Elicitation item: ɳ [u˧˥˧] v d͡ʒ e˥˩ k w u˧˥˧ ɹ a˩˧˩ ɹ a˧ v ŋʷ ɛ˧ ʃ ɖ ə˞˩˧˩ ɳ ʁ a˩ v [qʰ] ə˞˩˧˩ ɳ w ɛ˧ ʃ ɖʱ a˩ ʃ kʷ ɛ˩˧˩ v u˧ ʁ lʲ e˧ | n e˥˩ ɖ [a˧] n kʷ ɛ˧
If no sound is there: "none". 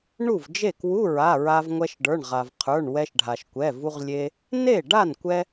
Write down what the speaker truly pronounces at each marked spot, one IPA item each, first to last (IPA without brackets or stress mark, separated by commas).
u˥˩, qʰ, a˥˩